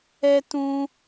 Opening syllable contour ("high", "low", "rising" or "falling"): high